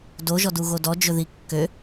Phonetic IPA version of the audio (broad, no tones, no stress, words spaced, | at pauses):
doʒɔduɣo dɔd͡ʒɵði kːø